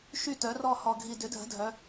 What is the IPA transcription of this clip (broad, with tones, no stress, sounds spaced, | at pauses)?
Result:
ʃ y˥˩ t œ˩˥ r ɔ˥˩ h ɔ˨˩ ɡʱ i˨˩ d ʏ˩˥ dʱ ə̤˩˥ dʱ œ˩˧